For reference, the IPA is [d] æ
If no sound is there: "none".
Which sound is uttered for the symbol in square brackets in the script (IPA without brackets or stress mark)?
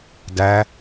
d